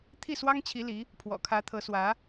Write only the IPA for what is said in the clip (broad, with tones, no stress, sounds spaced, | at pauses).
t̪ʰ i˥˩ s w ɑ˥ ŋ t͡ɕʰ i˧˥ l i˧˥ | pʰ w ɔ̰˨˩ kʰ ä˧˥ t̪ʰ ɤ˧˥ s w ä˧˥